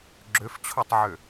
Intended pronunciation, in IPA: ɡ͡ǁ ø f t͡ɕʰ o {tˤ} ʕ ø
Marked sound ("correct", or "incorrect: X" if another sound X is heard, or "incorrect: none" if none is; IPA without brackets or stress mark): correct